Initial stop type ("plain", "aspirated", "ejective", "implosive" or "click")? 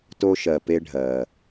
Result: plain